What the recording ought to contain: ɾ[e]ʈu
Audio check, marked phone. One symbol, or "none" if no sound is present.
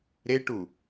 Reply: e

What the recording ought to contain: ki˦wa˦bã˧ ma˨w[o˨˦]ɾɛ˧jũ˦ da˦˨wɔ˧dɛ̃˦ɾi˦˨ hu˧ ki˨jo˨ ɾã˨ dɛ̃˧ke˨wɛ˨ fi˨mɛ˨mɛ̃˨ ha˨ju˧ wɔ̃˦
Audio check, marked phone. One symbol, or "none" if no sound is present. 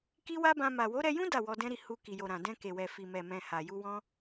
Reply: o˨˦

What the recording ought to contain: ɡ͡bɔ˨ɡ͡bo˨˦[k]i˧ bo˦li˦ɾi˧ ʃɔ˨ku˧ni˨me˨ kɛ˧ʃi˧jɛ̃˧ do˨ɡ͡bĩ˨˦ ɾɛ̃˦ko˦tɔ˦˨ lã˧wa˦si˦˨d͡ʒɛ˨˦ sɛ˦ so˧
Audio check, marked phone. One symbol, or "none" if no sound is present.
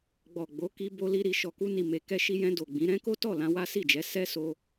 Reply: k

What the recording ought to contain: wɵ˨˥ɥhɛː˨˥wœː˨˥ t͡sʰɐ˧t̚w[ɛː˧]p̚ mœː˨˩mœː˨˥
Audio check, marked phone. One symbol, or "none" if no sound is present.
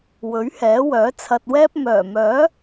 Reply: ɛː˥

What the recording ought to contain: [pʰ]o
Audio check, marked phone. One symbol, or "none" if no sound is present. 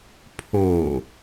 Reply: pʰ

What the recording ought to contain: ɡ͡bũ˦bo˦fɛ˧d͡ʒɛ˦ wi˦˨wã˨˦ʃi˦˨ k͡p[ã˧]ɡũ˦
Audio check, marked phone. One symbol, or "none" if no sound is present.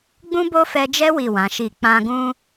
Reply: ã˧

